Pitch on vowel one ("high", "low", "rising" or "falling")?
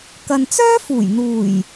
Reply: low